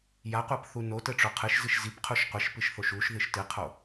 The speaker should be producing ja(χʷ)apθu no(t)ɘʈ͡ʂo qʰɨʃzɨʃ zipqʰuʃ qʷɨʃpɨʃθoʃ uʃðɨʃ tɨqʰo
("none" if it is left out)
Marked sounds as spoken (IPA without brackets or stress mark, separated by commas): qʷ, t